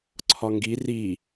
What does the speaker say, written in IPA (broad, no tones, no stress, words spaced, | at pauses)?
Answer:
ǀʰɒŋɡi ri